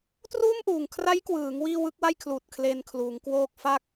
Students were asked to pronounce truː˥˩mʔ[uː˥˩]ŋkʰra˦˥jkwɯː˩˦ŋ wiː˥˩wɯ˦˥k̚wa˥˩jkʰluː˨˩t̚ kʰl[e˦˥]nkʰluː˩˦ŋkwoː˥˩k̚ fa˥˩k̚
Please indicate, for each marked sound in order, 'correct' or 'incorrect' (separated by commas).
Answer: incorrect, incorrect